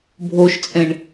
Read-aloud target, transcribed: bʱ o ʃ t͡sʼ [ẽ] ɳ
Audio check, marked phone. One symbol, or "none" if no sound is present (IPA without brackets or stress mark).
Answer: ẽ